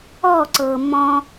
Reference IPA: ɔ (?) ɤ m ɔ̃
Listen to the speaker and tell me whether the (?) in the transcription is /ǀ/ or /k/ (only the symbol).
ǀ